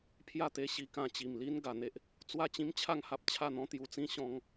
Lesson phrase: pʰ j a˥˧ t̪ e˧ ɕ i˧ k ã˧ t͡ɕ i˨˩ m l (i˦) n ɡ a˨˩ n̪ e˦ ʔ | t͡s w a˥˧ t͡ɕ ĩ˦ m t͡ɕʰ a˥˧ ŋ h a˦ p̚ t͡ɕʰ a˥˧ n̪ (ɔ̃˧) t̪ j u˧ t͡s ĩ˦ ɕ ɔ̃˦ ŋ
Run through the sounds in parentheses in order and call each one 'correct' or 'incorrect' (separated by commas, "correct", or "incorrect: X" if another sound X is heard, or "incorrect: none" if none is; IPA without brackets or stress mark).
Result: correct, incorrect: ɔ̃˦